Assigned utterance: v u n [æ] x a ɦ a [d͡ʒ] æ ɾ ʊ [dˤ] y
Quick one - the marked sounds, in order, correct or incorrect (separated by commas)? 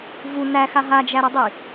correct, correct, correct